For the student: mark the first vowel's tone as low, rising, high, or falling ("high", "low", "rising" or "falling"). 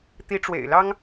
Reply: rising